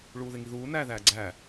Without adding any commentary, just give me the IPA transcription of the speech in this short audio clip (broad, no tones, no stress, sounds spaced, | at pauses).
ɭ uː ð e ŋ i ð uː n æː ð æː ɡ͡ǀ æ